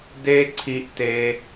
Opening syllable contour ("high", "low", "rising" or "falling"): high